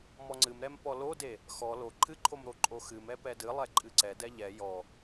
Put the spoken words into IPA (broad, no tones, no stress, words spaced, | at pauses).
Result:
mɔŋ͡ǀɨmɾɛm pɔlode | xɔ lo ǃʰɨǃʰom ɾoǃʼoxɨmɛ pɛdɨlˠɛ ǃʼɨǀɛdɛ ʎɛ jɔ